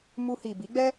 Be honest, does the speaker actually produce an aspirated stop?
no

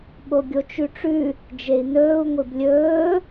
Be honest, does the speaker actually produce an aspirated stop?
no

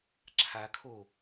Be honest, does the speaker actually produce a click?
yes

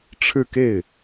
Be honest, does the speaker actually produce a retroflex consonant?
yes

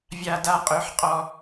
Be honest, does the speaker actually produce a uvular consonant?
yes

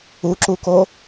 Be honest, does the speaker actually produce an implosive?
no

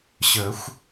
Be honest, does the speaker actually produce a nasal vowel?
no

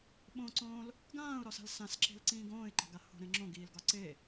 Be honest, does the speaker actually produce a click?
yes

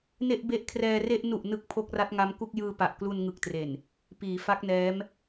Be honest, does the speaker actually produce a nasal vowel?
no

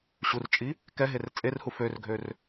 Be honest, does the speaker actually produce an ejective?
yes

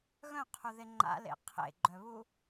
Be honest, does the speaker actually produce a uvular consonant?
yes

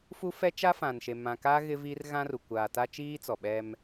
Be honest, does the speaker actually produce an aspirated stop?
no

